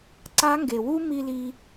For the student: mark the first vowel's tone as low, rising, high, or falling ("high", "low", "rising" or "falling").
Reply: rising